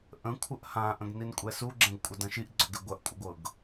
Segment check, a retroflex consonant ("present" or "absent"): absent